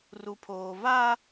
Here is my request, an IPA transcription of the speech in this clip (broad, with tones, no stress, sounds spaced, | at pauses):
r u˨ pʰ oː˨ v aː˦